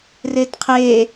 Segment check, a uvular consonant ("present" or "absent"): present